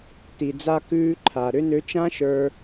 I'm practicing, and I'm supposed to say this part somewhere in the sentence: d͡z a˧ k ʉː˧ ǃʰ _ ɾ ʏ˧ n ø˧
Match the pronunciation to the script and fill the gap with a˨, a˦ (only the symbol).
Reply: a˨